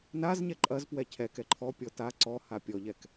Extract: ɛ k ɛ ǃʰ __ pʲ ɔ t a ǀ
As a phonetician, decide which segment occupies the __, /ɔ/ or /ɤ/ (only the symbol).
ɔ